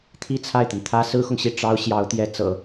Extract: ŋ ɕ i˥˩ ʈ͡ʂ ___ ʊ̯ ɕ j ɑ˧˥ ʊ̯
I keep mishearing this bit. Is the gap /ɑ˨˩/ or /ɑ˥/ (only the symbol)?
ɑ˥